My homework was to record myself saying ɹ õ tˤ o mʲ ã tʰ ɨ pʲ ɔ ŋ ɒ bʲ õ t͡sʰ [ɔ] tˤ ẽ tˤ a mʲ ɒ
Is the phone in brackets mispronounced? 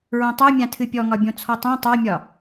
no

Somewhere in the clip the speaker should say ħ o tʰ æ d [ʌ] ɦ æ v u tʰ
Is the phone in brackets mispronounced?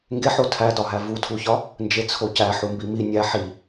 yes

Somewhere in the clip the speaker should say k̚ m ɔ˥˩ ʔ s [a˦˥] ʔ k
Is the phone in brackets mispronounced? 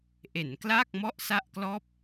yes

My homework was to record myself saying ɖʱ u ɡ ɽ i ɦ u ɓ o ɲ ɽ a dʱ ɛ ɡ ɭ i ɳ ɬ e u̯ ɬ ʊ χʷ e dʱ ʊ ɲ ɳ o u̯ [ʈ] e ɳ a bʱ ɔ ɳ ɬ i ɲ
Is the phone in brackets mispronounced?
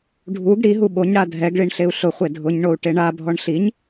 no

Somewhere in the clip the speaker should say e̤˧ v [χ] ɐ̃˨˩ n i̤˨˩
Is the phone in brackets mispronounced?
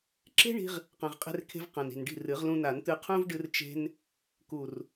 yes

